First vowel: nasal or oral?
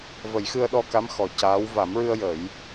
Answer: oral